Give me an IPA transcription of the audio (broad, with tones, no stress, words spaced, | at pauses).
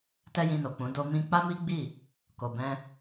tɛ˦jĩ˧no˨k͡pũ˨˦ do˧ mĩ˧k͡pa˦mi˦ ɡ͡bi˦˨ | ko˨bɛ̃˧